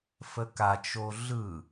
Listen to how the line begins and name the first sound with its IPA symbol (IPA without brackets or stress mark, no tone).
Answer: f